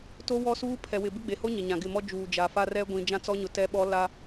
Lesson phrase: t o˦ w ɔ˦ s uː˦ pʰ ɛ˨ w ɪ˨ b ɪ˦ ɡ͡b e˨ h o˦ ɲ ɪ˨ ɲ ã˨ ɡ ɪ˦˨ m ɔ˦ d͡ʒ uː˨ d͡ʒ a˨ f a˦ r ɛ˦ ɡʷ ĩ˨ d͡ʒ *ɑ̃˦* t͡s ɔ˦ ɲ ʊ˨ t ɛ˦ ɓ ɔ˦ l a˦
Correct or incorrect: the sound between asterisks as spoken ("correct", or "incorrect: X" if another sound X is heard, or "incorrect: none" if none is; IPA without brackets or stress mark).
incorrect: ã˦